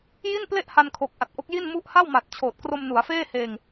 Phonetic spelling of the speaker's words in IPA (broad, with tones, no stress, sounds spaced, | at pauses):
j i˥˩ n p l e˥˩ ʔ h a˧ n kʰ o˨˩ k̚ ʔ a˨˩ t̚ ʔ o˦˥ k̚ j i˥˩ n m u˥˩ ʔ h a˥˩ w m a˨˩ t̚ t͡ɕʰ oː˨˩ t̚ k r o˧ m n u˩˦ a̯ f eː˥˩ h eː˧ ŋ